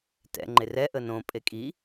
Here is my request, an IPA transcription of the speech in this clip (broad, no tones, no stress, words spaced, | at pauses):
tɛ̰ŋ͡ǃe rɛ ʔənõ pʼekʼi